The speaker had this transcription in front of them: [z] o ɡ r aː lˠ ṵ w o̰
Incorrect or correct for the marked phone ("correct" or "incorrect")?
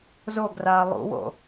correct